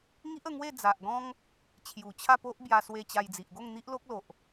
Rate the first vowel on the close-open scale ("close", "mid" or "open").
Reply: close